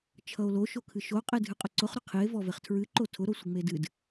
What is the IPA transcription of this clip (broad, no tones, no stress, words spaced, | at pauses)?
t͡ʃʰʌo̯lo ʃokʰɨʃo qʼedʱɨqʼʊǀʊχ ɾʊqʰie̯ vɔveχtʰɹɨ ǃotʰʊ ɾosʷɨŋ͡medɨd